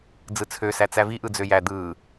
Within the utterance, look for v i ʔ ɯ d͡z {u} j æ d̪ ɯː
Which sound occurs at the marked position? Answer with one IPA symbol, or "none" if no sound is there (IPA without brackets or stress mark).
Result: ø